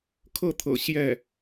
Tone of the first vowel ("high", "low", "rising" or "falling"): falling